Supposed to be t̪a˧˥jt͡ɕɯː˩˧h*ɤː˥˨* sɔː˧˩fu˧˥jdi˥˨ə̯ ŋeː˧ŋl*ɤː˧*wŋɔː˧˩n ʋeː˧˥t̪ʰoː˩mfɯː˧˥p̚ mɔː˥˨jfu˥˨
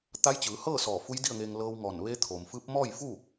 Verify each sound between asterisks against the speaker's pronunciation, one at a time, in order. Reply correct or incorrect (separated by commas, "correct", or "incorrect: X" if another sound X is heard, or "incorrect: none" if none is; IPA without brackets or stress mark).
correct, correct